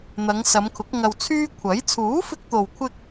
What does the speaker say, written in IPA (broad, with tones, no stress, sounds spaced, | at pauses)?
n̪ ɐ˨˧ ŋ s ɐ˨˧ m kʰ ʊ˨˥ k̚ ŋ ɐ˧ w t͡sʰ yː˥ kʷʰ ɐ˨˥ j t͡sʰ uː˨˥ f ɪ˧ k̚ t̪ o˨ w kʷʰ ɪ˧ k̚